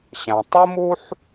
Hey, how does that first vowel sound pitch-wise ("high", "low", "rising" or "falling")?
low